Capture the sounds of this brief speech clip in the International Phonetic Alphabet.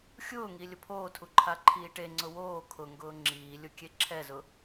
xʲ ʊː ŋ i lʲ ʊ pʰ oː tʰ u ǃʰ a ǃʰ iː ʈ e ŋ͡ǀ ʊ w oː kʰ ʊ ŋ ɡ ʊː ŋ͡ǁ iː lʲ ʊ kʲ e ǁʰ ɛ z ʊ

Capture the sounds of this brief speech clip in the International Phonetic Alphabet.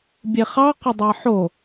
bʲ e χ ɑ q ɐ dˤ ɑ ħ o

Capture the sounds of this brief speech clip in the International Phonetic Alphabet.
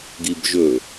ɡ i b ʒ ɵ

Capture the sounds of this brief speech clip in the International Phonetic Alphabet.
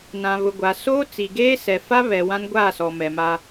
n ã˨ β ʊ˨ ɡʷ a˨ s oː˦ t͡s i˨ ɡ eː˦ s ɛ˨ f a˦ β ɛ˨ w ã˦ n ɡʷ aː˦˨ s ɔ˨ m ɛ˨ m a˦

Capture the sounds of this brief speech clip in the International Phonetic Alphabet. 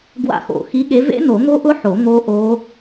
ɡ w a̰˦˨ x o̰˨˩˦ x i˨˥ ɠ e˨˥ v ḛ˦˥ n o˨˩˦ ŋ o˦˥ ʔ ʊ˦˥ ħ o˨˩˦ ŋ o˦˥ ʔ o˦˥

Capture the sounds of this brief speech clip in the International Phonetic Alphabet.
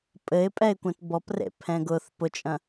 pʼ ɘ ɪ̯ pʼ ɛ ɪ̯ kʷ ɛ̃ t b ɔ p r ḛ pʰ ɛ̃ ɡ ʊ θ p ʊ t͡ʃʼ ɐ̃

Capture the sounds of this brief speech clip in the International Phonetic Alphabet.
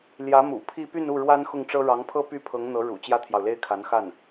l j ä˧˥ m ṵ˨˩ pʰ i˥˧ p y˥˧ n u˥˩ ɻ w a˥ n x ʊ˥˩ ŋ ʈ͡ʂ ɤ˥ ɻ ɑ˧˥ ŋ pʰ ɤ˥ p y˥ pʰ ɤ˧˥ ŋ n̪ ɤ˧˥ ɻ ṵ˨˩ t͡ɕ j ä˥ t̪ʰ j ɑ˨ ʊ̯ l e˥ ɪ̯ kʰ a˧˥ n x a˥˩ n

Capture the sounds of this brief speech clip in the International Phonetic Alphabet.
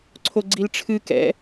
ǀʰ o ɡ͡ǀ i l ʈ͡ʂʰ ɨ k ɛ̰

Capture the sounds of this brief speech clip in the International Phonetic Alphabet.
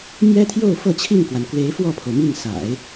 m j ɛ˥ t̪ʰ j o˥˧ ʊ̯ f ɤ˥˧ t͡ɕʰ i˥˩ ŋ k w a˩ n k w e˧˥ ɪ̯ f w ɔ˥˩ pʰ o˩ ʊ̯ m i˥˩ ŋ s a̰˨˩˦ ɪ̯

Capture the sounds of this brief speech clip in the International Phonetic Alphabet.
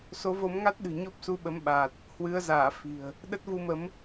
s o˨˦ v o˨˦ m ŋ a˦˥ t̚ ɗ ɨ̤˨˩ ɲ o˦˥ p̚ s u˧ ɓ ə˨˦ m ɓ aː˨˩ t̚ | h w ɨ˨˦ ə̯ z aː˧˩ f i̤˨˩ ə̯ | ɗ ə˦˥ t̚ v u˧ m ə˨˦ m

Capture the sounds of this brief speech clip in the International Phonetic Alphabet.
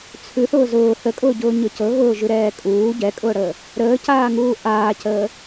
t͡sʰ ʉ θ ʊː z ʊː θ ə kʼ ʊː ɟ ʊː ɲ ʊ c ɤ ɣ ʊː ʒ ʉ ɾ ɛː kʼ uː ɟ ɛ kʼ ʊː ɽ əː | ɾ əː c aː ŋ uː ʔ aː c əː

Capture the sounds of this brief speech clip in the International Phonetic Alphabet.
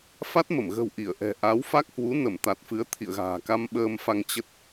f a˦˥ t̚ m ə˧˩ m ɣ ə̤˨˩ w ʔ i˧˩ ə̯ ʔ ɛ̤˨˩ ʔ a˨˦ w f a˦˥ k̚ h w u˨˦ n ə˧˩ m t̪ a˨˩ t̚ f ɨ˨˦ ə̯ t̪ʰ ḭ˧˨ ə̯ ɣ a̤ː˨˩ k a˧ m ɓ əː˧ m f a˧ ŋ t͡ɕ ə˦˥ t̚

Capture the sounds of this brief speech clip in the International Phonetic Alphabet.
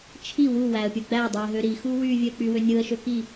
t͡ʃʰ i w u w æ ə̯ pʲ ɯ ɡ͡b æ dˤ u ɪ̯ ɦ ø ɾ i x u w y vʲ ø ə̯ k͡p y w ø nʲ ɯ ə̯ ʃ ø k i

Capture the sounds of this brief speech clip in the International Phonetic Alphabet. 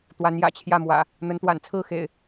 t̪ w a˨˦ n j ä̰˨˩ t͡ɕʰ j ä˥˨ m w ä̰˨˩ | n̪ ə˨˦ n t̪ w a̰˨˩ n t͡sʰ ɹ̩˥˨ x ḛ˨˩ ɪ̯

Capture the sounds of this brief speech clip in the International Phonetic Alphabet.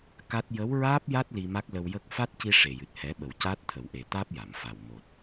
k a˦˥ t̚ j ə˧˥ w ɹ aː˦˥ p̚ j a˦˥ t̚ l i˧ m a˦˥ k̚ l ə˧ w j ə˦˥ k̚ f a˦˥ t̚ c i˧ ʂ e˨˩ j ɨ˨˩ t̚ h ɛ˨˩˦ ɓ ə˨˩ w c aː˦˥ t̚ t̪ʰ ə˨˩˨ w ʔ e˨˩˨ t̪ aː˦˥ p̚ j a˨˩˨ m f a˨˩ w m o˨˩ t̚

